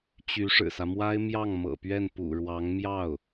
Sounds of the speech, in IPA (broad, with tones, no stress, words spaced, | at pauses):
t͡ɕy˧˥ʂɻ̩˨˩sä˦ mwa˥ɪ̯mjɑ˥˩ŋ mɤ̰˨˩pɥɛ˥˩npṵ˨˩ɻwɑ˧˥ŋ mjɑ˥˩ʊ̯